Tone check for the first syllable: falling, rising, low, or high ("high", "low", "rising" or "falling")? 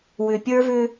low